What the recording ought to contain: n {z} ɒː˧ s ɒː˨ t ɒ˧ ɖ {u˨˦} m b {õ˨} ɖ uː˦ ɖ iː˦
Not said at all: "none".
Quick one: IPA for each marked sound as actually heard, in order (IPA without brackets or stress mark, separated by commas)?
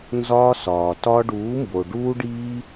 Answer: z, uː˨˦, o˨